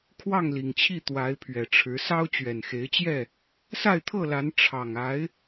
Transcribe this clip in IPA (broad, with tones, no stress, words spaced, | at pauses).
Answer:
kʰwɑ˥˨ŋli˨˩ŋt͡ɕʰi˥˨ t̪wa˨˦ɪ̯ pʰɥɛ˨˩ʈ͡ʂʰɻ̩˨˦ sɑ˦ʊ̯t͡ɕɥɛ˨˩nxe˨˦ɪ̯t͡ɕjɛ˥˨ | sa˥˨ɪ̯t̪ʰɤ˥˨la˨˦n ʈ͡ʂʰɑ˨˩ŋ a˨˦ɪ̯